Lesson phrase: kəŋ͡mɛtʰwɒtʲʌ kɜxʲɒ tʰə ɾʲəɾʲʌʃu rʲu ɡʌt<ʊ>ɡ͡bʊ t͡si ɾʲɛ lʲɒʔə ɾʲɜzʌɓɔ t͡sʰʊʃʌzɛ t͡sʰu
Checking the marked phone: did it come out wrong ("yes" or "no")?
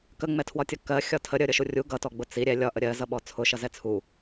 yes